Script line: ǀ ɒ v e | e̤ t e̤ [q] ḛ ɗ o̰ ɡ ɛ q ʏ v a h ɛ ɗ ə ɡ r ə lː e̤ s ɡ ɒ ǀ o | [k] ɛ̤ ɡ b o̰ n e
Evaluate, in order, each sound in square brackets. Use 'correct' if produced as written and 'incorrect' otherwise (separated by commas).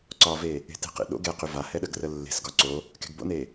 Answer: correct, correct